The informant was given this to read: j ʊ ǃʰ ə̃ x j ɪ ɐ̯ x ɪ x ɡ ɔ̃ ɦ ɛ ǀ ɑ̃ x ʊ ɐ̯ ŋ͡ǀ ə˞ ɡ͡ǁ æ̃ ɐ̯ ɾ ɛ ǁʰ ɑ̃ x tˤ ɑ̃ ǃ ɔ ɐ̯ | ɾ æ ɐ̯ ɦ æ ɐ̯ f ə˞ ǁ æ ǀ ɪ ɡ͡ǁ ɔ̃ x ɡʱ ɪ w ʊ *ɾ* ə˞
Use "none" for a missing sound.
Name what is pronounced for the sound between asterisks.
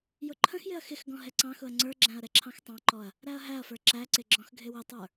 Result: tˤ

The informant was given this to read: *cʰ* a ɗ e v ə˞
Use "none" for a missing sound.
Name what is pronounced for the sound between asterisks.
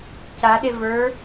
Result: c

